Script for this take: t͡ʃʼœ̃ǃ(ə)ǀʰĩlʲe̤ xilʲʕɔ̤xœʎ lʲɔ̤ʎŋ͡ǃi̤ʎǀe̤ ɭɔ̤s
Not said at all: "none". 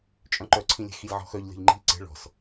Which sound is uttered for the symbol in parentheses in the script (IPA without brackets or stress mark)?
œ